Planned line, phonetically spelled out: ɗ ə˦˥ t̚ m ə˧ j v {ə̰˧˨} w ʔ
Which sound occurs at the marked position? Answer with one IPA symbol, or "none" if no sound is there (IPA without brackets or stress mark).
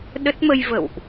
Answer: ə̰˧˨